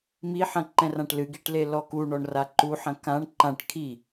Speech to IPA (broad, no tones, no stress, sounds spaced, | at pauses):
m i ħ ɐ̃ ǃ ɛ̃ r ã ʈ l ɨ ɡ i ʈ l e l ɔ k u ɳ ɔ ɳ r a ǃ u ħ ɐ̃ k ã ɳ ǃ ã ʈ kʰ i